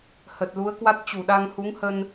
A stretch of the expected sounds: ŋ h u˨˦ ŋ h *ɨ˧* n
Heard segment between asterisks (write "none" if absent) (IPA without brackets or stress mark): ə˧